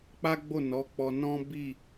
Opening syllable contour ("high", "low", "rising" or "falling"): high